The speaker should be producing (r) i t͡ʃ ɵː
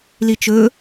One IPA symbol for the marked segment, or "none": l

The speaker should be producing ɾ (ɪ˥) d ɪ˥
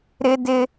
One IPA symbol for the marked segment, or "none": ɪ˥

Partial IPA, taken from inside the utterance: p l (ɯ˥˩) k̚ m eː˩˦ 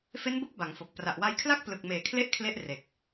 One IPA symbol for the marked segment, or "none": ɯ˨˩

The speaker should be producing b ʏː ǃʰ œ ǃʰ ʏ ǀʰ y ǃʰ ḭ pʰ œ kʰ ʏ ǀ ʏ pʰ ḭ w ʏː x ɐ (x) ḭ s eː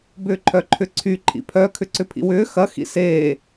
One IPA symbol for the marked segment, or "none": x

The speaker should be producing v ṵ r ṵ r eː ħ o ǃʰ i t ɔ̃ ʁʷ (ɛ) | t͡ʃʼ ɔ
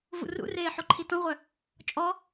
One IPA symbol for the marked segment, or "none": œ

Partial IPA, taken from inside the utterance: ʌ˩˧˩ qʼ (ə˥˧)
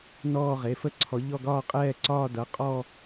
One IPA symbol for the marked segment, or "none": ɔ˥˧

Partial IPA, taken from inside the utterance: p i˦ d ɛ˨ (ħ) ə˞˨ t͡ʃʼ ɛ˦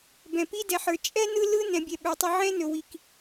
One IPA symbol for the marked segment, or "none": ħ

